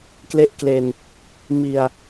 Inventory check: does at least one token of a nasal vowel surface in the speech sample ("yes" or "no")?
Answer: no